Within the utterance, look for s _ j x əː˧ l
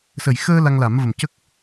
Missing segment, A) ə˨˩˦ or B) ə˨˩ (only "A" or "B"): B